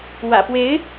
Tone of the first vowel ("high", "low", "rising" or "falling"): low